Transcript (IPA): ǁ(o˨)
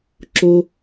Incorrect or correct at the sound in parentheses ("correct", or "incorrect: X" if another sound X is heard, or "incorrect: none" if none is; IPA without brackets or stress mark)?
incorrect: o˦